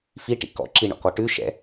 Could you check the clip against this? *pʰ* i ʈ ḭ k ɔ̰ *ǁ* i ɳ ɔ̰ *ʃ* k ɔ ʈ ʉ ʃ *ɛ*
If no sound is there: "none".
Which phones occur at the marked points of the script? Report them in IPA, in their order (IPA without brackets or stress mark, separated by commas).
f, ǁ, none, ɛ̰